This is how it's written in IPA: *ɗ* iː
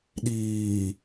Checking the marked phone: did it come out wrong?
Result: no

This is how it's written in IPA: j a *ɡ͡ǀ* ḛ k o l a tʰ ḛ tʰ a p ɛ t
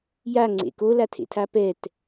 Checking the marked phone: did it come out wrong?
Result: yes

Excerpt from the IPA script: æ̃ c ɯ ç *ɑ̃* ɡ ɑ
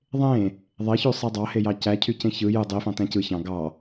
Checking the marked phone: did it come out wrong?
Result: no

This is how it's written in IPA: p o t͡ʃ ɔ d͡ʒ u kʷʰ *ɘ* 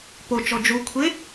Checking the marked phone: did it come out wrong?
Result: yes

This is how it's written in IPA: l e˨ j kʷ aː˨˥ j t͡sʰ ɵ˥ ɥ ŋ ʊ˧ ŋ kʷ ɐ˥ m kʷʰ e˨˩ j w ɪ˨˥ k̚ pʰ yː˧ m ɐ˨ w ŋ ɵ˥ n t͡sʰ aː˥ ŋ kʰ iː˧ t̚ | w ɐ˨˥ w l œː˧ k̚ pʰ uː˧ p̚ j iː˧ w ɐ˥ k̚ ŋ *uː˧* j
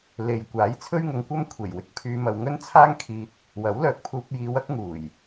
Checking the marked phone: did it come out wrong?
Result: yes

